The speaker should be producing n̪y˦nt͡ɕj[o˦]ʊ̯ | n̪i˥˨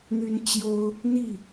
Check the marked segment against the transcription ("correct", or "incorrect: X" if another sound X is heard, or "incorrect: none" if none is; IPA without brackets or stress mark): correct